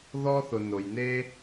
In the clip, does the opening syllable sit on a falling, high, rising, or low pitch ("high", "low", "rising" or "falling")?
high